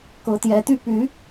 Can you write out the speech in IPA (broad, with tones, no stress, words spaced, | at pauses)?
kɤ˨˦t̪jɛ˨˦t̪y˦ py˨˦